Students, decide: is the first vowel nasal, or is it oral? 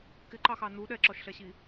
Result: oral